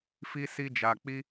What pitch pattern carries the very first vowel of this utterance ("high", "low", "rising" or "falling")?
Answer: high